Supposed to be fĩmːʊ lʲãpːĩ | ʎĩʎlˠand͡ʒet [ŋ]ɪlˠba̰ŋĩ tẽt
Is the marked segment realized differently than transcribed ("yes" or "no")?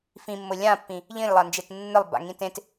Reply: yes